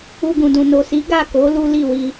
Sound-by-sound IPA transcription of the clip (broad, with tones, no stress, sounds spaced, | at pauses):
u˧ ɡ ũ˨ d ũ˨ n o˨ s i˨˦ ɡ a˦˨ k o˨˦ l u˦ l i˦˨ w i˧